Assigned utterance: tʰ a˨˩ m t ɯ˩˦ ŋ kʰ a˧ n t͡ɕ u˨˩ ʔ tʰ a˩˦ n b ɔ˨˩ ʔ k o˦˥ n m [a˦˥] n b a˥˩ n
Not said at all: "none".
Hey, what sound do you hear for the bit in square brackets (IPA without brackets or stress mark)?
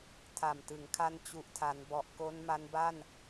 a˦˥